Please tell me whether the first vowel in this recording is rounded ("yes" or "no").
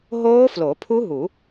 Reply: yes